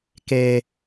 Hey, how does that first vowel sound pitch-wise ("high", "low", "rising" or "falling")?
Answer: high